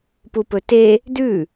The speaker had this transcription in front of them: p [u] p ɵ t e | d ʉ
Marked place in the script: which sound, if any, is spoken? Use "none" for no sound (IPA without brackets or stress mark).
u